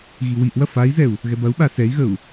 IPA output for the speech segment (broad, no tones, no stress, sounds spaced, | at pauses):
ɣ i w i ʔ w ɐ f a i̯ z ɛ u̯ | ɣ ɛ b ɐ u̯ ɓ a s ɛ i̯ ɣ ə u̯